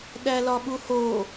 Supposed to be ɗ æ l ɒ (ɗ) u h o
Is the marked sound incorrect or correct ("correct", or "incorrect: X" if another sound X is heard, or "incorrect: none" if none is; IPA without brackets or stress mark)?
incorrect: ɓ